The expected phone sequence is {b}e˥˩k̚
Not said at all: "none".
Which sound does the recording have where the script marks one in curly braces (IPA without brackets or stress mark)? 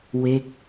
w